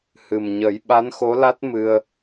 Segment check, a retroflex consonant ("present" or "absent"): absent